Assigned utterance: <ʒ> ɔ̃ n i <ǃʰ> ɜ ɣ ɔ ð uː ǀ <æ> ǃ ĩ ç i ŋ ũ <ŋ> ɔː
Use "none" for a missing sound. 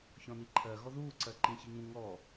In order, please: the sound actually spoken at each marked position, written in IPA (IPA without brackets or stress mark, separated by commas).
ç, ǃʰ, ɜ, ŋ